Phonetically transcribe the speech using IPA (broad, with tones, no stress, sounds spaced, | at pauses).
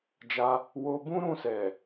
d͡ʒ a˧ | w o˧ b ũ˦ ɾ ũ˦˨ s ɛ˨